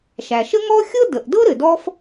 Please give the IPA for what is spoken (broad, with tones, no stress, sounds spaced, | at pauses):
ʃ æ˩ ʃ ə˥ ŋ ɔ˥ xʲ ɤ˥ d ə˩ ʔ d ɤ˥ ɾ ɘ˩ d ɔ˥ f